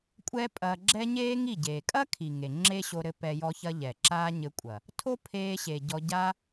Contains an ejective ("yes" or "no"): yes